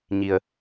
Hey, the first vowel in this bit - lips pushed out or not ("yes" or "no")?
no